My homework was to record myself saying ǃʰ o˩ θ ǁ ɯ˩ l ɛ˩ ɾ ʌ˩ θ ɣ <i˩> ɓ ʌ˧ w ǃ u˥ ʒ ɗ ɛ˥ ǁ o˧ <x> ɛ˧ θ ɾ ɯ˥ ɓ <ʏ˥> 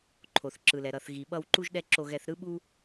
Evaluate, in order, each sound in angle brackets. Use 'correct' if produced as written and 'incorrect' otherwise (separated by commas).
correct, incorrect, incorrect